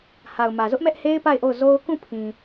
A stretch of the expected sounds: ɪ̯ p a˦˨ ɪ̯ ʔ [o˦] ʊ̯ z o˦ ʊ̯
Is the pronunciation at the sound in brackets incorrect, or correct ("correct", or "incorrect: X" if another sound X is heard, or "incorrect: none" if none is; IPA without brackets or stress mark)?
incorrect: o˦˨